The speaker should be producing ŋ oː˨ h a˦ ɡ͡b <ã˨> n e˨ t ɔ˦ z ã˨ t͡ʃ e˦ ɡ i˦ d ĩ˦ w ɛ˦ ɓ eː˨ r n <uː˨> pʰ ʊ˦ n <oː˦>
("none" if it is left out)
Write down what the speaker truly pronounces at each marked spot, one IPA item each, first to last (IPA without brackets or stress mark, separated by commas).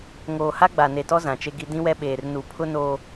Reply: a˨, u˨, oː˨